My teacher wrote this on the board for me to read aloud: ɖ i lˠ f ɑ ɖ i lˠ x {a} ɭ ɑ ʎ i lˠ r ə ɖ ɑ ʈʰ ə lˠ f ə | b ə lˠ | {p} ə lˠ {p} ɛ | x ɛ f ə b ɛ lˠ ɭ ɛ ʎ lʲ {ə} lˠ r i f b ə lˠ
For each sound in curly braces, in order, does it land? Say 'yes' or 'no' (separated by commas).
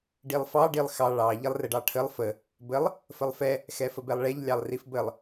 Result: no, no, no, no